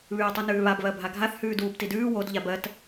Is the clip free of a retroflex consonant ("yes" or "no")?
yes